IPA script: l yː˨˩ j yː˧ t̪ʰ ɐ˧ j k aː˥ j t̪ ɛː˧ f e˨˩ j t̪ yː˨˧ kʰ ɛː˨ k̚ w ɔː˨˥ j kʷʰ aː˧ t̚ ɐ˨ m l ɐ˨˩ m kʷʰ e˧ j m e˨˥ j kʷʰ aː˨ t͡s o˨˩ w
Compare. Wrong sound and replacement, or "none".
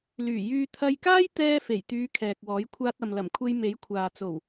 none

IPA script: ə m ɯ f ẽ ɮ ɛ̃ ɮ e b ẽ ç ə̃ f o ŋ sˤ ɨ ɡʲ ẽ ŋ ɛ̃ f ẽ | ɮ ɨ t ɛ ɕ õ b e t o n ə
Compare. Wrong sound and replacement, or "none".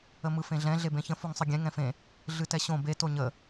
n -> ɲ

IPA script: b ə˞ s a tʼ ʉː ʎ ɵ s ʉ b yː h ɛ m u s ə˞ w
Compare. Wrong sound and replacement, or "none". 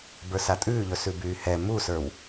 none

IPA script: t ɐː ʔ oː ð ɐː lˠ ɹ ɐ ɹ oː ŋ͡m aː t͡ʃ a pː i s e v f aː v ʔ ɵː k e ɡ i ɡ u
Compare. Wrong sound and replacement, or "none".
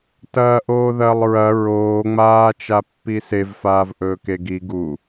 none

